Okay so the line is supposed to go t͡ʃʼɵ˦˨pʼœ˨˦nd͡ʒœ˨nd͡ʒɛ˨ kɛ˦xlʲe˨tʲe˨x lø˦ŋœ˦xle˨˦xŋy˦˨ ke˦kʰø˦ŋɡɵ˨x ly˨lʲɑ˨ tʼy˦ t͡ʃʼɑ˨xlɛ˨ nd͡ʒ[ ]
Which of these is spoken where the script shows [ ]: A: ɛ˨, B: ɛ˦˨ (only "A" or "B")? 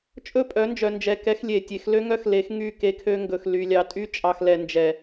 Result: A